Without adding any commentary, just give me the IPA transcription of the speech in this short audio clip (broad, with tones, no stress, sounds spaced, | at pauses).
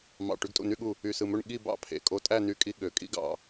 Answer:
m ɑ̰˧˩ ʈ y˧ ɡ tʼ ṵ˧˩ n y˥˧ ɠ u˧˩ | y˧˩ s ɯ˧˩ m ø˥˧ ɳ ɠ i˥˧ b ɑ̰˥˧ pʰ ḛ˧˩ kʼ o˧ tʼ æ˥˧ n y˥˧ kʼ i˥ ɠ ø˩˧ kʼ ḭ˥ ɡ ɑ̰˧˩